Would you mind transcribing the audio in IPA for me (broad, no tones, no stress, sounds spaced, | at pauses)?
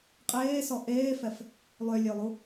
qʼ eː s ɔ ʔ eː f ɛ f | lˠ ø lʲ ø lˠ u